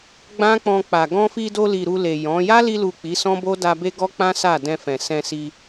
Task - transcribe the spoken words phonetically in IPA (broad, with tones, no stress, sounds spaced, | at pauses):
ɡ͡b ã˦ k͡p ɔ̃˧ k͡p a˨ ɡ ɔ̃˧ f i˧ d o˧ l i˨ ɾ u˧ l e˨ j ɔ̃˨˦ j a˦ l i˧ l u˨ k͡p i˨˦ s ɔ̃˦ b o˦ d a˧ b e˦ ɡ ɔ˦ k͡p ã˦ s a˦˨ d ɛ̃˧ f ɛ̃˨ s ɛ̃˧ s i˧